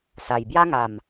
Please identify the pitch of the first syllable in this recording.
low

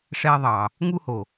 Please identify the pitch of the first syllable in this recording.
high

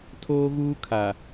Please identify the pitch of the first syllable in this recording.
high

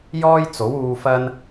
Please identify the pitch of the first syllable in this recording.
high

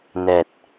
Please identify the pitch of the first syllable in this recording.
low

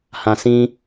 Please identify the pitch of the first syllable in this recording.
low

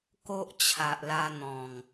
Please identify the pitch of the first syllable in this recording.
high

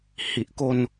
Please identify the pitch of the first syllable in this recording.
low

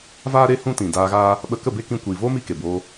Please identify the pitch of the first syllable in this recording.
high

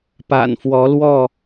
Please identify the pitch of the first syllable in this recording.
low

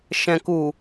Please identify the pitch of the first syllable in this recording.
low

